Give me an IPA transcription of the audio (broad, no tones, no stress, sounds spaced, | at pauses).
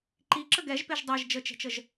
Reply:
ǃ i ǁ ə ɡ ɛ ʒ p e ʒ dˤ ɜ ʒ d͡ʒ ə t͡ʃ ɛ̤ t͡ʃ ə ʒ